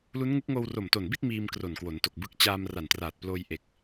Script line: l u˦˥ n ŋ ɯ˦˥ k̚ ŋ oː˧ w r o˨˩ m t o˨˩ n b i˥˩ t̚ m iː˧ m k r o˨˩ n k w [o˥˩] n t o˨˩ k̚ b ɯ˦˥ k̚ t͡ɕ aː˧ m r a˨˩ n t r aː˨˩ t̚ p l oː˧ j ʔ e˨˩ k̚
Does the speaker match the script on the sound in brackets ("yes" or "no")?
no